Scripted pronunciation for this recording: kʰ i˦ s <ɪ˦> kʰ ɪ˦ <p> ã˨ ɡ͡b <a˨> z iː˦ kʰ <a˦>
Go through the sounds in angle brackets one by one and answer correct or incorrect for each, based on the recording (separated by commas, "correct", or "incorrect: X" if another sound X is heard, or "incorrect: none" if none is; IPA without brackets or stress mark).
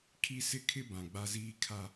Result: correct, incorrect: b, incorrect: a˦, correct